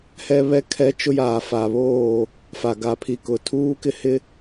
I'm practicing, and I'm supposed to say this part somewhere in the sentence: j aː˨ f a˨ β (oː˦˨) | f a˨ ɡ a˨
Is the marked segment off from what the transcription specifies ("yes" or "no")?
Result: no